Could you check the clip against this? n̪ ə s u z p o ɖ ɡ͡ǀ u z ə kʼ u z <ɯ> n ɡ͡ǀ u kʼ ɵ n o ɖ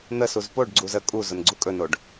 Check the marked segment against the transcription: incorrect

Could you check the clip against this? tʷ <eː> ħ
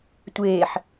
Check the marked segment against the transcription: correct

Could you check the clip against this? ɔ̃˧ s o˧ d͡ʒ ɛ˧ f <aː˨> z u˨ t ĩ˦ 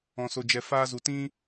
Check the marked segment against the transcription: incorrect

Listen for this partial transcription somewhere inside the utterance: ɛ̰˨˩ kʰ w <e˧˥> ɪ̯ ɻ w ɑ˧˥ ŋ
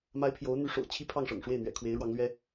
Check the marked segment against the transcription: correct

